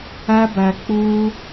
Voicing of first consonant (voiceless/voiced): voiced